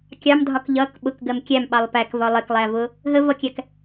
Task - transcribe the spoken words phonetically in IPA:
kʲɑmdʱɒk ʎʌk ɓʊkɡɜm kʲæmɓɑlˠ pækvɒ lˠɪklˠævʊ | ɦəvʌkʲæk

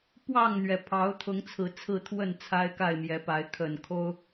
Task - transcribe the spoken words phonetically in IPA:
pwɑ˥˨ŋn̪ɥɛ˩ pʰɑ˨˦ʊ̯t̪ʰʊ˨˦ŋt͡sʰɹ̩˨˩ t͡sʰɹ̩˥˨t̪ʰwə˥˨n t͡sʰa˦ɪ̯ka˥˨ɪ̯mjɛ˨˦pa˨˦ɪ̯ kʰə˨˩n kʰo˦ʊ̯

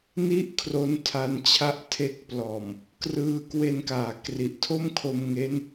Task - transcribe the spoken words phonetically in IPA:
ni˥˩ʔ kʰro˦˥ntʰa˧nt͡ɕʰa˦˥ʔ tʰe˦˥k̚plɔː˨˩m | krɯː˦˥kwe˧nkaː˩˦ kri˨˩ʔtʰo˥˩mkʰo˧mŋe˦˥n

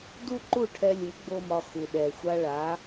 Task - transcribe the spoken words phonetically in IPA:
du˥ǃu˥˩ʈʰɛ˧lʲu˩˥ ɡ͡bo˥mɒ˧xu˩ ɗɛ˩xʷa˧ ɭa˩˥

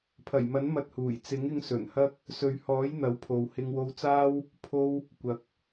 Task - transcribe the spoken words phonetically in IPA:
pʰɐ˨˩jmɐ˨˥n mɐ˧t̚huː˨˩j t͡sɪ˨˥ŋɪ˧ŋ sɵ˨˩nhɐ˥k̚ | sɵ˨ɥhɔː˨˥j n̪ɐ˨˥wpʰo˨whɪ˧ŋ wo˧wt͡saː˥w | pʰo˥w | kʷɐ˨˥k̚

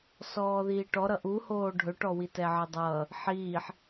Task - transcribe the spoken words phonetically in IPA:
sɔːðiːʈɔ ɾʌʔuhoː ɖʱɵʈɔwitɛ ʕədˤʌː | ħiːħ

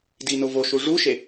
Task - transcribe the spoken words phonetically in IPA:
dinovoʃu ʐuʃe

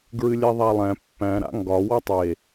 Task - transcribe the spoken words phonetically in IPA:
ɡɹɨlʲæðˤalˠæ̃ pːæ̃ ɾa̰ŋɡɒ wɒtˤe

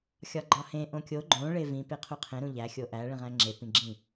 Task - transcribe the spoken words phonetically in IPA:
xʲɒɡ͡ǃɒhẽ ʔõkʲo ɡ͡ǃõ ɭevĩ peqʰuqʰẽ ɾũʎæ xʲoʔæ ɭĩʁæ̃ŋ͡ǁe pĩɡ͡ǁĩ

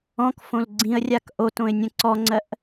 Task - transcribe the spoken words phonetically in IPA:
ɔ̃kfõl ɡ͡ǀĩə̯rʲak ʔotõɪ̯nʲə̃ ǀɔŋ͡ǀɜʔ

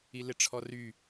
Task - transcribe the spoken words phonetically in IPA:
ilɪʈ͡ʂʰɔry

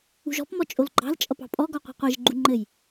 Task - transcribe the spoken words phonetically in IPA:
ṳʒɔ̤pmɔ t͡ʃʼolɡ͡ǃɑ̤lt͡ʃʼʌp ɑ̤pʼɔɡɔ qʷɑ̤qʷeʒɡ͡ǃu ŋ͡ǃɘj

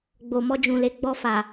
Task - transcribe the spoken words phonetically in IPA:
ɡ͡bo˨mɔ˧d͡ʒũ˨le˨˦ ɡ͡bɔ˧fa˨

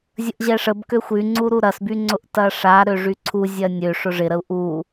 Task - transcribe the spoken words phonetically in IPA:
zʲəʔʑɛʂəb køxʷyŋ͡ǀuɾu ɾɐsbyŋ͡ǀʊʔ tɐʂa ɾøʐyǀʰu zʲɐnʲø ʂʊʐɪɾəu̯ ʔu

